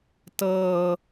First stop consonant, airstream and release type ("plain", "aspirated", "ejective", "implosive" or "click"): plain